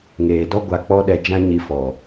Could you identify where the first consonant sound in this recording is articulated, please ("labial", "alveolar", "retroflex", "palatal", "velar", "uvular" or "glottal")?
velar